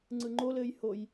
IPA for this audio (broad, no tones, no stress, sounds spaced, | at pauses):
ŋ͡ǀ ɯ ŋ͡ǃ o l ɘː j h o j